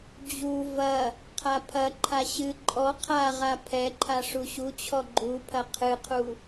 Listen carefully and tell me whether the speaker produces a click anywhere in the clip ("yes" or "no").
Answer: yes